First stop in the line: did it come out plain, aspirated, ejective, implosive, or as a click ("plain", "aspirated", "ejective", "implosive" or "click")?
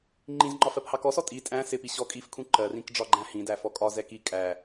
click